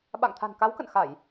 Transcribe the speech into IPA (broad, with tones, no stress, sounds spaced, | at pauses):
ɓ a̰˧˨ ŋ t̪ʰ a̤˨˩ n k a˨˦ w k ə̰˧˨ n x a˧˩˨ j